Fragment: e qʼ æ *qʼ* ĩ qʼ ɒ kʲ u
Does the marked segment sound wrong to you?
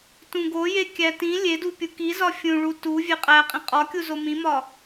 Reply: no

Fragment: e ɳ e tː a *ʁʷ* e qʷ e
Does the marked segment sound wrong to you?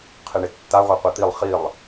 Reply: no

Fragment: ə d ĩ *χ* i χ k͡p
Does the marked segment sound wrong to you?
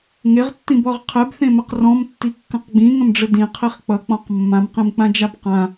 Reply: yes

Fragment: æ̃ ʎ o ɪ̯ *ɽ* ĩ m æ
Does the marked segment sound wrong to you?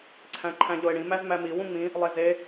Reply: no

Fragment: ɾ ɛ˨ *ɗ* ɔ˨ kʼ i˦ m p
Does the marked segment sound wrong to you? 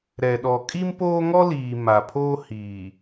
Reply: no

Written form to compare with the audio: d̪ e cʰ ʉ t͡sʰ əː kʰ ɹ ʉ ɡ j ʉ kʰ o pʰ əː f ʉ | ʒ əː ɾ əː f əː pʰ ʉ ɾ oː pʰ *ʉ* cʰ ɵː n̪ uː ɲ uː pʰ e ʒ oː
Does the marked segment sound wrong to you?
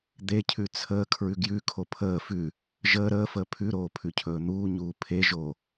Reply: no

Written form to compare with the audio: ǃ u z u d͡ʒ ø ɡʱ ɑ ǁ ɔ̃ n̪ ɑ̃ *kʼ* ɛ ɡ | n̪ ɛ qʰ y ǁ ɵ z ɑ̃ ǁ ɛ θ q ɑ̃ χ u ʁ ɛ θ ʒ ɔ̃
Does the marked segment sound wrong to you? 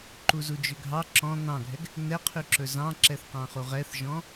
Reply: yes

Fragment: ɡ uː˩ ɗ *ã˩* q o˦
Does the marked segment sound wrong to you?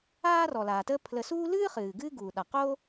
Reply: yes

